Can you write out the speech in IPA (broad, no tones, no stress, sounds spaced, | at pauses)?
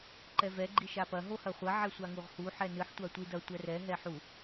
ǃ ɛ v ɛ ɡ͡ǃ i ʃ a p ɐ ɦ o h ɐ χʷ ɐ ʕ ɛ sʷ a ŋ u ʁ h u ħ ɛ n ɨ ħ tʷ a tʷ i d ɐ tʷ ɛ r ɛ ɦ ɛ ħ u